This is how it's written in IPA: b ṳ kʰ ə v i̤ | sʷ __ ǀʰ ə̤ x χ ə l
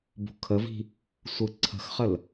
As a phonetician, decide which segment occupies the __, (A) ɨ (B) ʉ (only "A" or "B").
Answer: A